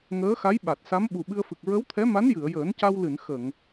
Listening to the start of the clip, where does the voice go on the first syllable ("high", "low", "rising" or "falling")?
rising